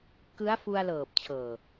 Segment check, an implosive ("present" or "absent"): absent